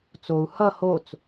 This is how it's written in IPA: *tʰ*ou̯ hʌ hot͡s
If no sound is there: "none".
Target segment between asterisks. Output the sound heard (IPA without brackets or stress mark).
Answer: t͡s